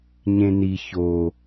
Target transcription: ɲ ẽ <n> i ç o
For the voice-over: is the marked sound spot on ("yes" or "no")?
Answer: yes